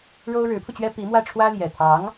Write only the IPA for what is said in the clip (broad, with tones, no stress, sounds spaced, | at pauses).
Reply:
ɻ o˥ ʊ̯ ɻ ɻ̩˧˥ pʰ u˧ t͡ɕ ɥ ɛ˥ p i˧˥ m w ä˥˩ ʈ͡ʂʰ w ä˥ l j ɛ˨˩ t̪ʰ ɑ˧˥ ŋ